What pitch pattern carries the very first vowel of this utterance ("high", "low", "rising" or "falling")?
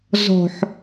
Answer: low